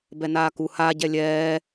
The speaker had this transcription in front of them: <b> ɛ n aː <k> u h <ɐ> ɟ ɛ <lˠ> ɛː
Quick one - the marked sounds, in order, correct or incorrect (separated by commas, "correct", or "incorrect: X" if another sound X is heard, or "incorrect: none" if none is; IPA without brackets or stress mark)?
correct, correct, incorrect: a, incorrect: lʲ